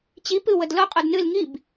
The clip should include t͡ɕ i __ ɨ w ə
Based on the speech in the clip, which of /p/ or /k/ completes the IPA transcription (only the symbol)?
p